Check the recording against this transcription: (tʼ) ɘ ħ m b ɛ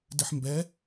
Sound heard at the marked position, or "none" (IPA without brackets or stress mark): d